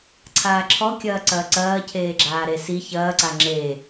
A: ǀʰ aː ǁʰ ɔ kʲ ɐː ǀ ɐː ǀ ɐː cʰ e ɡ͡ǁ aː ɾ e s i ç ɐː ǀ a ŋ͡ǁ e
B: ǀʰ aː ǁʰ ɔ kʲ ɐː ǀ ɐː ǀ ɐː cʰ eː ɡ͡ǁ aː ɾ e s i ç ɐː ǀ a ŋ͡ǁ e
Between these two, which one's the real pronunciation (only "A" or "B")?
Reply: B